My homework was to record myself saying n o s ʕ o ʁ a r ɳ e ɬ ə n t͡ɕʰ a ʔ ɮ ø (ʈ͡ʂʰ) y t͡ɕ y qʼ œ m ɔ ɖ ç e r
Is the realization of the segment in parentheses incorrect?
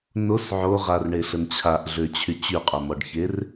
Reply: yes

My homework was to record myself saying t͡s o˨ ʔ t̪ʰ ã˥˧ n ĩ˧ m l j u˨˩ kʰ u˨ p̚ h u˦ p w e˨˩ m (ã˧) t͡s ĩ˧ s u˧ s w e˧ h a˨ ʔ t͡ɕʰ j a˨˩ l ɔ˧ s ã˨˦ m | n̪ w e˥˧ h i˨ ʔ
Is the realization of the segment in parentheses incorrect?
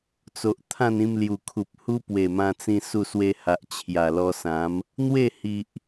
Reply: no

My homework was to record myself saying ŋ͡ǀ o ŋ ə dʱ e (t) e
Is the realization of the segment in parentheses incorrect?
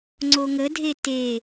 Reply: no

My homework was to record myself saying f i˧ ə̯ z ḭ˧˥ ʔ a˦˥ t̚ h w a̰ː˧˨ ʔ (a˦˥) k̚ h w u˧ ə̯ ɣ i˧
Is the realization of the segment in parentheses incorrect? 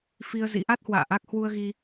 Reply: no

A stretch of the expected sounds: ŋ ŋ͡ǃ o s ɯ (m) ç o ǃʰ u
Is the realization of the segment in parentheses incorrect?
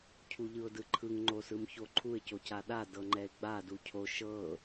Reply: no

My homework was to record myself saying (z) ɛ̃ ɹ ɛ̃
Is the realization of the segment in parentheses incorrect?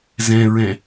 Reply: no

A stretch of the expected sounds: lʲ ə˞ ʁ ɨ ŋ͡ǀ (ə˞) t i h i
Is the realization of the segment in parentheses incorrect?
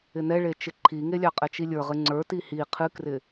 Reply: no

